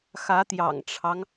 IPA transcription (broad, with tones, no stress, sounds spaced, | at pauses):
x ä˨˦ t̪ j ɑ̰˨˩ ŋ ʈ͡ʂʰ ɑ˦ ŋ